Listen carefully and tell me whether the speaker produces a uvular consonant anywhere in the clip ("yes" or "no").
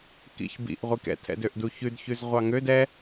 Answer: yes